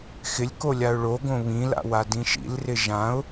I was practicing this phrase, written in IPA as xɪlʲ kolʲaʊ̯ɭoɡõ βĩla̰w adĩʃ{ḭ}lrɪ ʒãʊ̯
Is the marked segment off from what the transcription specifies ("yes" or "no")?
no